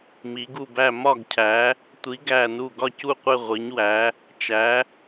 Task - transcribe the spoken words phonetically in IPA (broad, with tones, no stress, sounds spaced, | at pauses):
m i˨˦ ɡ u˦˨ b æ˦˨ m ɒ˦˨ ɡ cʰ æ˨˦ | tʷ i˨˦ ɡ æ˦˨ n u˦˨ ɡ ɒ˦˨ c u˦˨ qʷ e˦˨ ʁʷ i˨˦ ɲ w æ˨˦ | t͡ʃ æ˨˦